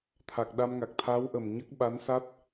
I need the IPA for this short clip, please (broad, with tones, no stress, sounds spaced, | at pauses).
t̪ʰ a˨˩ k̚ ɗ a˧ m ŋ a˨˩ k̚ t̪ʰ a˧˥ w ʔ ə˨˩ m ɲ ə˦˥ k̚ ɓ a˧˥ n s a˦˥ t̚